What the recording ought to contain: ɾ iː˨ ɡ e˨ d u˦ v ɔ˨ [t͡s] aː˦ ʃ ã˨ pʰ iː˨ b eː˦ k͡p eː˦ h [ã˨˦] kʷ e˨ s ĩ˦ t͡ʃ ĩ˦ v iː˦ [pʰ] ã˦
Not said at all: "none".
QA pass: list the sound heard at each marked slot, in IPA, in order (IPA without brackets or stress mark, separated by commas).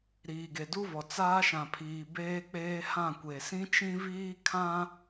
t͡s, ã˦˨, kʰ